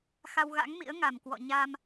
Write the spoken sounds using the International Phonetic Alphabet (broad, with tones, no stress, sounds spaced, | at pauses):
x a˧ w ɣ a̰˧˥ ŋ m ḭ˧˥ ə̯ ŋ a˨˩ m k w ɔ̰˧˨ ɲ a˧ m